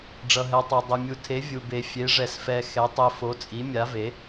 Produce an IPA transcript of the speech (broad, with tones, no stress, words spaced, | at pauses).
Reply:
ɖ͡ʐʌ˨ɦɛ˨tˤɛ˨ dˤe˨mʲu˨ tʰe˨˦ vʲu˨be˨˦ fʲe˨˦ʐɛ˨sfɛ˨ xɛ˨˦tˤi˨ fo˨˦t͡sʼi˨˦mʲa˨˦ve˨˦